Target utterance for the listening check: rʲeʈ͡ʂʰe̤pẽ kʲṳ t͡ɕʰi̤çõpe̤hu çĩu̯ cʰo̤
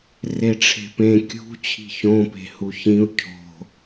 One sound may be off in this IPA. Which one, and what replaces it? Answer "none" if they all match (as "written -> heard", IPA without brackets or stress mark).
rʲ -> r